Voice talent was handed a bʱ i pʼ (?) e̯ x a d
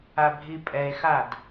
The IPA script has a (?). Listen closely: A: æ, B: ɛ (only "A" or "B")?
B